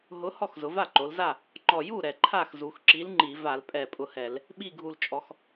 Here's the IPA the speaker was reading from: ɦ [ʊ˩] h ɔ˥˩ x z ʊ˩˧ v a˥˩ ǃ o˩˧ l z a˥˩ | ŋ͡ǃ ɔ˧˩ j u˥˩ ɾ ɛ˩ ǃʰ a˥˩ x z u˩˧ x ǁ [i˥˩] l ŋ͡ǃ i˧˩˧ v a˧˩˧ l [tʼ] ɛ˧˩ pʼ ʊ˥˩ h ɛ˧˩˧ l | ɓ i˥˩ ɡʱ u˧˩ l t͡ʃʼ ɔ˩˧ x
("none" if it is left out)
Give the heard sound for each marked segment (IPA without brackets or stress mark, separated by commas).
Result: ʊ˨˥, i˨˥, pʼ